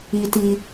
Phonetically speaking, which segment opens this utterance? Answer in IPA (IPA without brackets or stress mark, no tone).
i